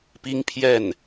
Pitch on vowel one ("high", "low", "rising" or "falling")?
high